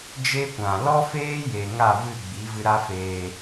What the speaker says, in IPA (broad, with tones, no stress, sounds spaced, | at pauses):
d͡ʒ e˦ kʷ ã˨ l ɔ˦ f eː˦ j e˨ ŋ a˦˨ v ɨ˦˨ ɡ͡b i˨˦ v ɨ˧ ɾ a˦ f eː˧